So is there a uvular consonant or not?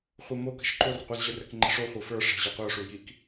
yes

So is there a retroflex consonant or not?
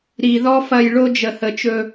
yes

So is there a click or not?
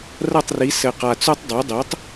no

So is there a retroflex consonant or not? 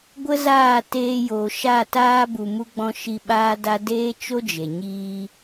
no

